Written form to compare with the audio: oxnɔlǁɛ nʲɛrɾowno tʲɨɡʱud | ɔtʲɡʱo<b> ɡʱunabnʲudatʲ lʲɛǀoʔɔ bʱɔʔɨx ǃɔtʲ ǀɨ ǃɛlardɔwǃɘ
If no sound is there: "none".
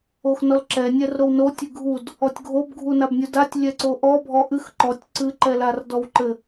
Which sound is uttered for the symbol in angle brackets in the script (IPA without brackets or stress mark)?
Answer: b